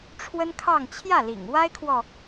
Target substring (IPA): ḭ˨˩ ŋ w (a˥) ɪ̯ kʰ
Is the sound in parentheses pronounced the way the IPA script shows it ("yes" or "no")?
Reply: yes